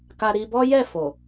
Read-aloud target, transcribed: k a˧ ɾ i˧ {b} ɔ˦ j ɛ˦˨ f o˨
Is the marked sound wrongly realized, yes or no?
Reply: no